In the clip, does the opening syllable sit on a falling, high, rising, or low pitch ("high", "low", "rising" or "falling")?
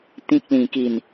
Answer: low